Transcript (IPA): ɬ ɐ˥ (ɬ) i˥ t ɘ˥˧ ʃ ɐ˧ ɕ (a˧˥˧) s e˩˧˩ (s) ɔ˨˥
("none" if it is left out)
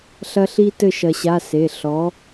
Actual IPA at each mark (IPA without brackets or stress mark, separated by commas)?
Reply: ɬ, a˧˥˧, ɬ